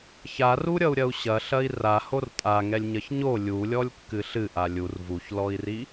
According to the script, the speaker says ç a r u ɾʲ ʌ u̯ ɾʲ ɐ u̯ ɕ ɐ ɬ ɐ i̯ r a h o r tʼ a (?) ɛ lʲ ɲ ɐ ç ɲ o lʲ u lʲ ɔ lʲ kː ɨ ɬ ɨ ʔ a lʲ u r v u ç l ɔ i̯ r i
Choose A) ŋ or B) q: A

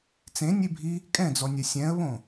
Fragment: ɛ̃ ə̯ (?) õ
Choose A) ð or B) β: B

